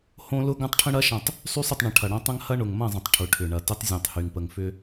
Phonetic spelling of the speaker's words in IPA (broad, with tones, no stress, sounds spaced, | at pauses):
h õ˦ l ʊ˦ ɡ ɐ̃˦ tˤ ʈʰ ə̃˦ ɽ ɐ˦ ʃ ɐ̃˨ tˤ | sˤ y˦ sˤ ʏ˦˨ tˤ ɳ ə̃˨˦ ʈʰ ɐ˨ ɽ ɐ̃˦ tˤ ɐ̃˦ ŋ h ɐ˦ ɳ ʊ˨ ŋ m ɐ̃˦˨ zˤ ə̃˨ tˤ ʈʰ ʊ˨ ʈʰ ʏ˨ ɳ ɐ˨ t ʏ˦ tˤ zʲ õ˨ tˤ h y˨ ŋ p ə˨ ŋ f ʏ˦